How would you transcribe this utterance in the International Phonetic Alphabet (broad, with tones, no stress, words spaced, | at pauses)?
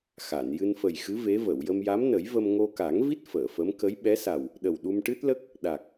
xa˨˩˨n jɨ˧nfə˨˩jxɨ˧˥ ve˧˥və˨˩˨w jə˧mja˧˥mnə˨˩˦jvə˧m ŋo˧ka˨˩˦ŋvi˦˥t̚ fəː˨˩˨fə˧˥m kə˧˥j ɓɛ˧˥sa˨˩w | ɗə˨˩wɗu˧mʈɨ˦˥t̚lə˦˥k̚ | ɗa˨˩k̚